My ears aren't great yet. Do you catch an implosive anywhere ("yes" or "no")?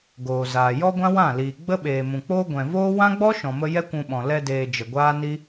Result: yes